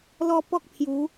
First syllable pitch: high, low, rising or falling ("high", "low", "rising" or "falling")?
high